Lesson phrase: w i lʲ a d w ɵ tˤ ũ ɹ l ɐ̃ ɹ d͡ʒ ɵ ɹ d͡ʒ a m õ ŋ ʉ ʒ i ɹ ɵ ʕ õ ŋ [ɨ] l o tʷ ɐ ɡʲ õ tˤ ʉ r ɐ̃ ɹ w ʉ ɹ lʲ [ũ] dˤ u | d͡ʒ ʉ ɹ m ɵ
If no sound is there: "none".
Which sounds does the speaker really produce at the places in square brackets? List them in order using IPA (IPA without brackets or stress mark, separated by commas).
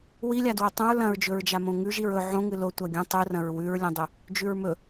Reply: ɨ, õ